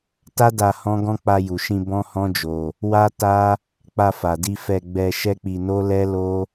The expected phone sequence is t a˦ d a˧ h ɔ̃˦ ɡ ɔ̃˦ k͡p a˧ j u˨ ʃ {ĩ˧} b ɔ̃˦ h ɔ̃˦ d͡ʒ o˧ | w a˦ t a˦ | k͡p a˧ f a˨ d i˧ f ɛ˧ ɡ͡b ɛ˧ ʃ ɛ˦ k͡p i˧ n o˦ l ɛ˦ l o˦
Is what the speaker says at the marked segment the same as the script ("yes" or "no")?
yes